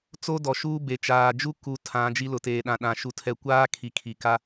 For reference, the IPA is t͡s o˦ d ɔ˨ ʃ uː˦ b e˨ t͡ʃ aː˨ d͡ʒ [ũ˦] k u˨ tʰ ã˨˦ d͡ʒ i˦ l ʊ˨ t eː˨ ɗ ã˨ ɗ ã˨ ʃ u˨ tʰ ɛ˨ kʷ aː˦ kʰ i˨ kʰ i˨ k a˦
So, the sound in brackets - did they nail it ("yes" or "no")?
no